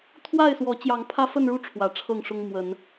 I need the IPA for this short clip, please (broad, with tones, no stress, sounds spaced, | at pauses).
t̪ʰ w a˥˨ ɪ̯ s w ɔ˨˦ t͡ɕ j ɑ˨˦ ŋ pʰ ä˦ f ə˥˨ n ɻ u˥˨ ʈ͡ʂʰ w ä˨˦ ʈ͡ʂʰ ɤ˥˨ ŋ ʂ ʊ˦ ŋ m w ə˨˦ n